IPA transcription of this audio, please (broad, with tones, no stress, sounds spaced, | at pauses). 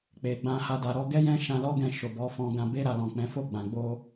k͡p e˨ ɡ͡b ã˧ h a˧ d a˨ ɾ ɔ˨˦ ɡ ɛ˦ j ɛ̃˦ ʃ ã˧ l ɔ˦ ɡ ɛ̃˧ ʃ o˨ b ɔ˨˦ f ɔ̃˧ ɡ ã˧ b e˧ ɾ a˨ l ɔ̃˨ k͡p ɛ̃˨˦ f o˦˨ ɡ͡b ã˨ ɡ͡b o˧